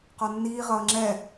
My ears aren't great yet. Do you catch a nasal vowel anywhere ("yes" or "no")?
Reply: no